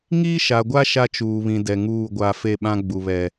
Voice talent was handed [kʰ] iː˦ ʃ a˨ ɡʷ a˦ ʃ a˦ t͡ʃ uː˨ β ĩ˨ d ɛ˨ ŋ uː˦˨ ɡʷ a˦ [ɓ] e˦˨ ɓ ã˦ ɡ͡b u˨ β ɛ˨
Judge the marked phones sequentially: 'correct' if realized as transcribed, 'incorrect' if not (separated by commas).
incorrect, incorrect